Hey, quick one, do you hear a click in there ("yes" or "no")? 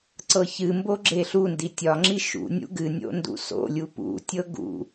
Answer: yes